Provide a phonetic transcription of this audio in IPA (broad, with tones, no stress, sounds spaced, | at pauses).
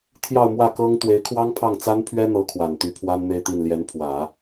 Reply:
t̪ʰ j ɑ˥˧ ʊ̯ m w ä˥˩ k ɤ˥ ŋ t̪ w e˧˥ ɪ̯ kʰ w ɑ˥ ŋ pʰ ɑ˥˩ ŋ t͡s a˥ n pʰ ɥ ɛ˥ n̪ ɤ˧˥ kʰ w a˨˩ n t̪ y˧˥ pʰ w a˥ n n̪ e˥˧ ɪ̯ t̪ i˥˩ n l j ɛ˧˥ n pʰ w ä˨˩˦